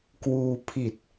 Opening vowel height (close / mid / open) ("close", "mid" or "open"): close